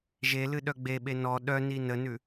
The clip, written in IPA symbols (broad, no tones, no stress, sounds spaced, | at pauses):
ʒ e l ɨ ɗ œ ɡ͡b e ɓ e n ɔ ɗ œ n i n ə n ʉ